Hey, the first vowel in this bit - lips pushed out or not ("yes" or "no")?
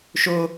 yes